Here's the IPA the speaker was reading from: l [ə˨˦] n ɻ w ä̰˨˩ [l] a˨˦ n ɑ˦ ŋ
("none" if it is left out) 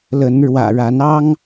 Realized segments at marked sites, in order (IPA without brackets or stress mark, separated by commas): ə˨˦, ɻ